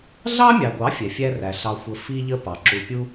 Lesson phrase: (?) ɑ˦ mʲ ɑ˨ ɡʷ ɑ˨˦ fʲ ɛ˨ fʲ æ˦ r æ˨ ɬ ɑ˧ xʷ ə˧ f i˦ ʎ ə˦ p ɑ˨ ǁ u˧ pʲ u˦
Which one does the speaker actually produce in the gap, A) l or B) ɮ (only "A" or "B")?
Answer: B